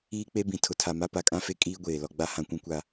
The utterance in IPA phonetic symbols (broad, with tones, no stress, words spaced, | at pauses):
iː˦k͡pe˦bĩ˨ tʰʊ˨tʰa˨ma˦ pa˨kʼã˦ fe˦ kʼiː˦ɡʷeː˨lɔ˦ɡ͡ba˦ hã˦kʷũ˦kʷa˦